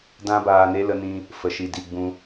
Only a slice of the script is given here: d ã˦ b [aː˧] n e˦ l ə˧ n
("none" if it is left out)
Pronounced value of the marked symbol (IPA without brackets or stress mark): aː˧